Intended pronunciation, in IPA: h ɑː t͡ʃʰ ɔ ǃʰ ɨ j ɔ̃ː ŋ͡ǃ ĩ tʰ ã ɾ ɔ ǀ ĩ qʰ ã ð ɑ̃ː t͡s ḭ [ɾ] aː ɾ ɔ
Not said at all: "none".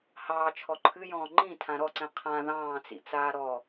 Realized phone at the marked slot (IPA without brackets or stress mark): t͡s